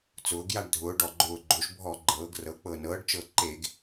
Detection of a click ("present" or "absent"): present